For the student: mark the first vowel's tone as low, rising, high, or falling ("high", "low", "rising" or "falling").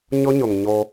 high